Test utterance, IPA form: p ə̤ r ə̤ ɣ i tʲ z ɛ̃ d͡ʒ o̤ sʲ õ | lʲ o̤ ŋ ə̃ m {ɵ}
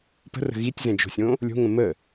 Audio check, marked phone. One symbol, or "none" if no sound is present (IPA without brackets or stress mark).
ə